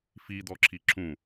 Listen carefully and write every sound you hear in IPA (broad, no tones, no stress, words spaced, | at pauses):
fid̪ɔǁʰi ǁʰũ